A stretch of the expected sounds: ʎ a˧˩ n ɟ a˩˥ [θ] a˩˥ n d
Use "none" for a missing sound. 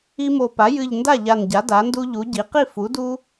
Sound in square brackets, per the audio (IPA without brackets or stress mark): d